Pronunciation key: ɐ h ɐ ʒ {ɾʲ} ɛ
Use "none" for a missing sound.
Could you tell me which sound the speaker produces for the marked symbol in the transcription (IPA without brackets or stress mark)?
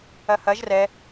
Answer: r